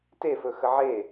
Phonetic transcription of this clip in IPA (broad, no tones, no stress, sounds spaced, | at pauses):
t e f ɵ x ə ʕ e